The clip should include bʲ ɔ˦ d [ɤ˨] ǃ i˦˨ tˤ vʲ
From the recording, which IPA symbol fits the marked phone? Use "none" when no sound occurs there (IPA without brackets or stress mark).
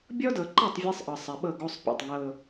ɤ˨